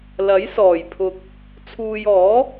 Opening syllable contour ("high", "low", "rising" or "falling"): rising